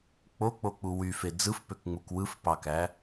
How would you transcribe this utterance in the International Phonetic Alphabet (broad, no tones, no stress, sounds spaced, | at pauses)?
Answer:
k͡p o k͡p o k͡p u w y f e d͡z ɯ f p ø k ŋ͡m u k w ɯ f p ɑ k æ